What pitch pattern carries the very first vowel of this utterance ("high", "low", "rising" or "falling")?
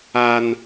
high